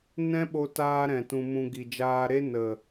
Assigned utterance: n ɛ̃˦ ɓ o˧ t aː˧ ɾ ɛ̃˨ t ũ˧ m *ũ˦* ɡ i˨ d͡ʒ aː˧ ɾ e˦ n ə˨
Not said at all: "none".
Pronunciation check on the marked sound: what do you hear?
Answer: ũ˧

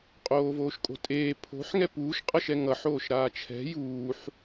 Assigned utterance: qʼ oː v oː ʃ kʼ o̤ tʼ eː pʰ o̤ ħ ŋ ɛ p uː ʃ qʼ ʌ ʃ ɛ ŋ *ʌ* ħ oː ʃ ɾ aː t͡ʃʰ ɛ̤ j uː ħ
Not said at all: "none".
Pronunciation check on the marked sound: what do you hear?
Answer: ʌ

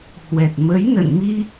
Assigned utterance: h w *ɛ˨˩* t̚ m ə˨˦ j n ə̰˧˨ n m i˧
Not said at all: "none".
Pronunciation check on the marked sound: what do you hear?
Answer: ɛ˨˩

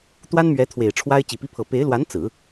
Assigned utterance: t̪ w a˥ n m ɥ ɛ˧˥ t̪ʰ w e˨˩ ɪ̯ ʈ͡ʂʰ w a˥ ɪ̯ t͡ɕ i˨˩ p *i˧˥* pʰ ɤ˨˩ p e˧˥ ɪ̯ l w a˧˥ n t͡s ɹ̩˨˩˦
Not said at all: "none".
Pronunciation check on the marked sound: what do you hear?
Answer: i˧˥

